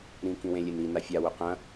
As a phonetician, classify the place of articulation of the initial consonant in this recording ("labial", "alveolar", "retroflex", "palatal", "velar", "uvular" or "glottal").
alveolar